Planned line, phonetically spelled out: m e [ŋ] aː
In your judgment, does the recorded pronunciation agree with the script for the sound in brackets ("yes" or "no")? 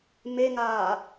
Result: yes